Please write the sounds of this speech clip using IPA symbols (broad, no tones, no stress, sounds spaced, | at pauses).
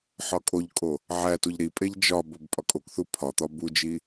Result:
ħ ɒ kʼ o ʎ kʼ o | ʕ æ t u ʎ ɾ i pʼ e ʎ d͡ʒ ɒ b o b pʼ ɒ kʼ o k θ u pʰ ɒ t̪ ɒ b u d͡ʒ i